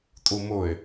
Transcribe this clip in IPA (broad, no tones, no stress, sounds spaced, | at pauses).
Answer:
tʼ u m ʊ ɪ̯